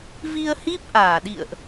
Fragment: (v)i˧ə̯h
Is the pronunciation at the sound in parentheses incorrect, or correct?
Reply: correct